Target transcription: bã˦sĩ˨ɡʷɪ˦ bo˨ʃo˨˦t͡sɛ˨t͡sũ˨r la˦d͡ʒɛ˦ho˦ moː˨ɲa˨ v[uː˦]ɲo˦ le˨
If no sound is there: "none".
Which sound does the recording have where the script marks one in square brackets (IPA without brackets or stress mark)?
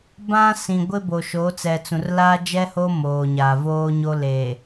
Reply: oː˦